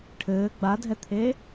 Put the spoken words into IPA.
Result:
ʈʰ ɘː ɡ͡b a dʱ ɛ t̪ʰ eː

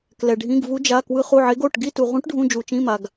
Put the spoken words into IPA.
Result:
k l ɛ˩ ɖʱ ĩ˩˧˩ ɡ v u˨˦ d͡ʒ a˩˧˩ k w ɯ˨˦ χ u˩˧˩ ʕ e˨˦ ɡ o˩˧˩ ʈ ɡ i˦˨ t u˩ ʁ ũ˨˦ ʈ ɖʱ ũ˩˧˩ d͡ʒ u˩ t͡ʃ ĩ˩˧˩ m a˩ ɡ

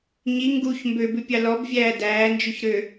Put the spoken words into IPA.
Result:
ɲ i ŋ ɡ u ç m b ø b ʉ pʲ ɑ l ɔ b vʲ æː d æː n d͡ʒ ʉ ç ɾ ø

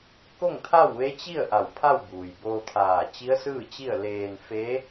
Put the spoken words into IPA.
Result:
k o˥˨ ŋ t̪ʰ a˥˨ w ʋ e˧˥ t͡ɕ i˥˨ ə̯ ʔ a˧˩ w pʰ a˥˨ w b uː˩ j b oː˧ t̪ʰ aː˧˩ t͡ɕ i˧˥ ə̯ s ɯː˥˨ t͡ɕ i˥˨ ə̯ l eː˧ n f e˧˥

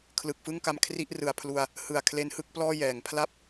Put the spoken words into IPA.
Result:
kʰ l ɯ˨˩ k̚ f ɯ˥˩ ŋ k a˧ m kʰ r i˥˩ ʔ r ɯ˨˩ a̯ pʰ l u˧ a̯ | h ɯ˨˩ a̯ kʰ l e˦˥ n h ɯ˥˩ k̚ p l ɔː˥˩ j ɛː˩˦ ŋ pʰ l a˦˥ p̚

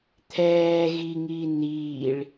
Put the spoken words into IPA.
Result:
t̪ʰ ɛː ɣ i ŋ i n̪ iː ɭ

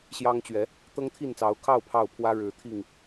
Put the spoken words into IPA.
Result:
ɕ j ɑ˦ ŋ t͡ɕ ɥ ɛ˨˦ | t̪ ɤ˦ ŋ t̪ʰ i˥˨ n t͡s ɑ˨˦ ʊ̯ kʰ ɑ˥˨ ʊ̯ pʰ ɑ˥˨ ʊ̯ pʰ w ä˦ ɻ ɻ̩˨˦ t̪ʰ i˥˨ ŋ

